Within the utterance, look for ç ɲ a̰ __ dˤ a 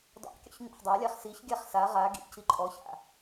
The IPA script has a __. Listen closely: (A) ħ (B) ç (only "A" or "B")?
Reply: A